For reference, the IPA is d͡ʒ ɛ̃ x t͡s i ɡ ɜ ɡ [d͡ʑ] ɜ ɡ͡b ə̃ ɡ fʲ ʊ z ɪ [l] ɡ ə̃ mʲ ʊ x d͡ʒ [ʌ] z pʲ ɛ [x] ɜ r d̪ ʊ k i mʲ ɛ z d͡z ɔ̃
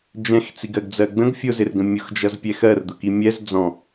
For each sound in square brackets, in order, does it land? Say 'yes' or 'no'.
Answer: no, no, yes, yes

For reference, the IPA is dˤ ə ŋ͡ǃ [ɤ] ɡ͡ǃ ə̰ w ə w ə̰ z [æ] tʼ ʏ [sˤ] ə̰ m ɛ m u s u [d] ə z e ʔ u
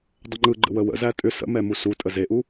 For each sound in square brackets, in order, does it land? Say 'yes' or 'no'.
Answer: no, yes, no, no

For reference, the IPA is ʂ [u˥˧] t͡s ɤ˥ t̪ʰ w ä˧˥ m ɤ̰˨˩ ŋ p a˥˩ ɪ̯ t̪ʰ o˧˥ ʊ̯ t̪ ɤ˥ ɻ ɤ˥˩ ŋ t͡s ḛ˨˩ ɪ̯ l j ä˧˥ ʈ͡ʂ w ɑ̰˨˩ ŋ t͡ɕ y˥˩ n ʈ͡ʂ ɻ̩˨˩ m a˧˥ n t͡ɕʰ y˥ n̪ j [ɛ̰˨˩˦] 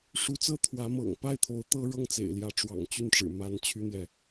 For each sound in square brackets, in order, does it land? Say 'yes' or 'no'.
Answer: no, no

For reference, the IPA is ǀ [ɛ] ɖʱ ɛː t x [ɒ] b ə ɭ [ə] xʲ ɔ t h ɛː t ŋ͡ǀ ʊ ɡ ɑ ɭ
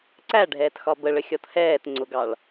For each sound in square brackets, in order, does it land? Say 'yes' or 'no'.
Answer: no, yes, yes

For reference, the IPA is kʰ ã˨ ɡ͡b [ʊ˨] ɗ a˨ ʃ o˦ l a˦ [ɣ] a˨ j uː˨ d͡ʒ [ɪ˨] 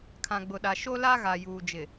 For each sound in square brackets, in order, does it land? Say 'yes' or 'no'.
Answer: yes, yes, yes

